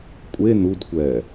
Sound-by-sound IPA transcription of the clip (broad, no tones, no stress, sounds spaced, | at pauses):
kʷʼ e n u d kʷ ɛː